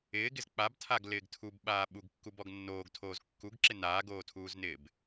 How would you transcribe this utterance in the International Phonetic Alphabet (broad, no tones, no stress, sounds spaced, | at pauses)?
ɪː ɡ ɪ z k͡p a b tʰ a ɡ l ɪː ɡ tʰ u b ɓ aː ɓ u ɡ kː u b ɔ ɡ nː oː ɡ tʰ oː z kː u ɡ ǁ ɪ n aː ɡ oː tʰ uː z n ɪː b